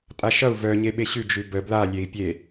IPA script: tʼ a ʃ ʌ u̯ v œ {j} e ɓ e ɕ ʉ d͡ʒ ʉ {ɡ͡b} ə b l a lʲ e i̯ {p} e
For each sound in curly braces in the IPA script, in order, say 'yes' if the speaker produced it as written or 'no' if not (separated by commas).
no, no, no